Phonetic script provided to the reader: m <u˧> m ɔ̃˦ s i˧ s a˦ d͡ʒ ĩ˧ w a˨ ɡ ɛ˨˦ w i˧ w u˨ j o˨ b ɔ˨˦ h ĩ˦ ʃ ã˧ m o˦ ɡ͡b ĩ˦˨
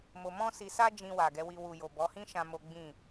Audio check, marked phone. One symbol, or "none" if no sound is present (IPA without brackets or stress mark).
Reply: o˧